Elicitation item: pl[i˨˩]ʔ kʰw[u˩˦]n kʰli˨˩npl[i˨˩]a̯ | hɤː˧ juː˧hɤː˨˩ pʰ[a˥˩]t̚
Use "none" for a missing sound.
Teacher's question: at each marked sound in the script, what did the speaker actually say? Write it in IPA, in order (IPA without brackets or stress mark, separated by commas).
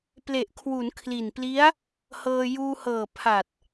e˨˩, u˩˦, i˦˥, a˨˩